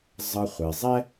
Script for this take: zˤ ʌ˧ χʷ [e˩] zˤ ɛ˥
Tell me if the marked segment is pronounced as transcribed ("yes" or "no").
yes